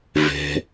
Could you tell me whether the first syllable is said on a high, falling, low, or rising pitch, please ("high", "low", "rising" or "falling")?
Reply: low